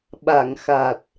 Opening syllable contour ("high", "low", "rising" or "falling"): low